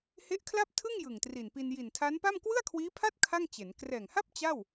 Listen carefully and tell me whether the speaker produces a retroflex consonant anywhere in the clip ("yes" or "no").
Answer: no